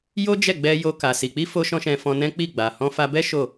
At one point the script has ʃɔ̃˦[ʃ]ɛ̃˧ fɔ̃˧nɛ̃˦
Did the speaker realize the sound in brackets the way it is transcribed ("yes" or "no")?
yes